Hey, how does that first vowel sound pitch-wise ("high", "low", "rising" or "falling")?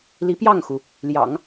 rising